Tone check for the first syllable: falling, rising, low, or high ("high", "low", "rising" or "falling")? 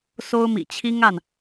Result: high